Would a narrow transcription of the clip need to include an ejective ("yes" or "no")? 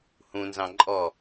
yes